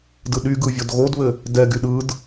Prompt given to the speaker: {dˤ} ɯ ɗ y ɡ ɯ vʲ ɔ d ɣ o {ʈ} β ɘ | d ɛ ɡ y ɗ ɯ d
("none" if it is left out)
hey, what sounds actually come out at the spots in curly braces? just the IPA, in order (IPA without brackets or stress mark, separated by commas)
d, d